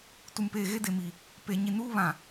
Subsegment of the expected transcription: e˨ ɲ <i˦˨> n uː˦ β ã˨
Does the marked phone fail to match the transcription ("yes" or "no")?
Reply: yes